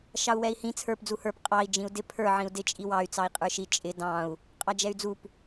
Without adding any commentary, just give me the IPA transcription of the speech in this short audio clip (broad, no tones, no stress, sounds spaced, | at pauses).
ʃ ɑ u̯ w ɛ i̯ h ĩ t͡sʰ ə˞ p d͡z u h ə˞ p qʼ ɑ i̯ d͡ʒ ĩ u̯ d ɪ pʰ ə˞ ʕ ĩ u̯ d ɪ t͡ʃʼ i w ɑ y̯ t͡s ɑ i̯ qʼ ə˞ ʃ i t͡ʃʼ ɪ d ɑ̃ u̯ | qʼ ɑ d͡ʒ ɛ y̯ d͡z u p